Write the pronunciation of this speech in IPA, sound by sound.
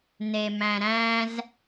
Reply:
n e m æ̃ ɾ æ̃ z

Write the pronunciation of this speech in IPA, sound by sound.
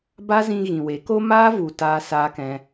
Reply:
b a˦ z ĩ˧ ɣ ĩ˨ w e˨˦ k o˦ m aː˦ v u˨ t aː˧ s aː˧ k ɛ̃˧

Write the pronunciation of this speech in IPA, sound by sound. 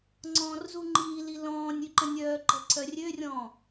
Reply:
ŋ͡ǀ ɔ̃ː r z u ŋ͡ǃ iː l i l ɔ̃ː nʲ y ǃ ə̃ nʲ œː ǃ ɛ̤ ǀʰ œ rʲ ø rʲ ɔ̃ː

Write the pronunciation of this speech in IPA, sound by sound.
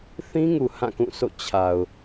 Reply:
θ ĩ˦ ŋ u˨ h ã˦˨ k ũ˦˨ s o̰˦˨ t͡ɕʰ a˨ ʊ̯

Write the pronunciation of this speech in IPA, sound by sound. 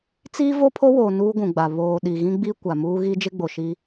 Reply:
t͡s iː˦ v o˦ pʰ o˦ w oː˨ n uː˦ ɡʷ ũ˨ ɡ͡b a˨ β oː˨ ɗ i˨ ɣ ĩ˦ ɡ͡b i˦ kʷ a˨ m uː˦ ɣ i˦ d͡ʒ ɪ˦ ɡ͡b o˨ ʃ i˦

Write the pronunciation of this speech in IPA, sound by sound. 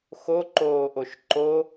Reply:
x o ǃ oː ʔ o ʃ ǃ o

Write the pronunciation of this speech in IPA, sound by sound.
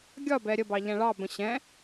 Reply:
ɡʲ ɒ b ɛ ɾʲ ə b ɑ ʎ æ̃ ɭ ɑ b ə̃ ɕ ɛ̃

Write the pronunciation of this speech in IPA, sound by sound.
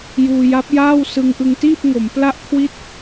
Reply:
j uː˧ j a˦˥ p̚ j aː˥˩ w s ɯ˧ ŋ ʔ ɯ˧ ŋ t iː˥˩ p̚ ŋ o˩˦ m p l a˥˩ ʔ kʰ w i˥˩ t̚

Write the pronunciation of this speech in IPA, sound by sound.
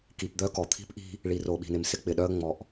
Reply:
k i˨ p d̪ œ˦ k ɔ˨ t̪ʰ i̤˦ p ʔ i̤˦ | ɭ i˨ r o˨ ɓ i̤˨ n ɪ˨ m s ɪ˦ k͡p ɪ˨ ɗ œ˦ ə̯ ŋ͡m ɔ˨ ʔ

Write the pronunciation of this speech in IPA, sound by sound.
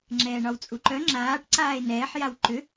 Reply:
ŋ͡ǁ ɛː ɳ ɒ w t͡sʼ u ǃ œ ŋ͡ǁ aː ʈ ǀ aː e̯ n ɛː ħ j a w ǃ ʏ

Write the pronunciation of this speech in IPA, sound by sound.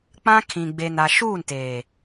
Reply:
k͡p ã˦ kʰ ĩ˨ ɡ͡b e˨ n a˨ ʃ uː˦˨ n t eː˨

